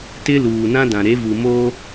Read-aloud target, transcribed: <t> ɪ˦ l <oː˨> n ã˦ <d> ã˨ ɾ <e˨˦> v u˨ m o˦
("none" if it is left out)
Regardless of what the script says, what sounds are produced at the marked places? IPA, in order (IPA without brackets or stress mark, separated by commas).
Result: t, uː˨, d, e˨˦